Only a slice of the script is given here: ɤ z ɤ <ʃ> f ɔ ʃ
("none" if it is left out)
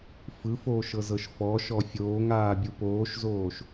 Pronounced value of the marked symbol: ʃ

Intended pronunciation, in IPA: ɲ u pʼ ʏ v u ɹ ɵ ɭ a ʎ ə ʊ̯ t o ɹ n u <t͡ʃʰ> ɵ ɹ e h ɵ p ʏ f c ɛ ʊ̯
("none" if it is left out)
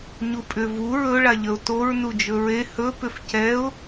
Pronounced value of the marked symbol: d͡ʒ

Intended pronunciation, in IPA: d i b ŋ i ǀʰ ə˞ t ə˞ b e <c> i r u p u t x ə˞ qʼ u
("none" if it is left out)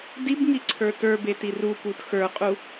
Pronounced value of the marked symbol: t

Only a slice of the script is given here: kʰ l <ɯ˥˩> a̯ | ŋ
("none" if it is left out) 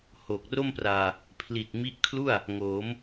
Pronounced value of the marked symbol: u˥˩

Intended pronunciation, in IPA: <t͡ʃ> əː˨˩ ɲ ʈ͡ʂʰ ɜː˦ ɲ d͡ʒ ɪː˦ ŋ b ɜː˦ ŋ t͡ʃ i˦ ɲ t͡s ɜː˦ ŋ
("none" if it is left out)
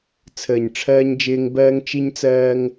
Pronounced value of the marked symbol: t͡sʰ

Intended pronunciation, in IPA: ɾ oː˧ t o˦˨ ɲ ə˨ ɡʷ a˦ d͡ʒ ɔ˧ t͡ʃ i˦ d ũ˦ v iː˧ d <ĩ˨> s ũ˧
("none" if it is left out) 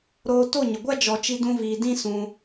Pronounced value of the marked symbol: ĩ˦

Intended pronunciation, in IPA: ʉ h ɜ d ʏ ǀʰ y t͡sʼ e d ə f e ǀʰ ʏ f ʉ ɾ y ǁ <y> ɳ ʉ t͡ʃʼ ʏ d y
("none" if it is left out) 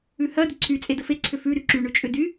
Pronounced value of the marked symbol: y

